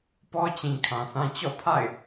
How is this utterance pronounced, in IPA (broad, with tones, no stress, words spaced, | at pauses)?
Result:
pɔ˦t͡ɕĩ˨ kʰã˨θã˦ t͡ɕɔ̰˦˨pʰa̰˦˨ɪ̯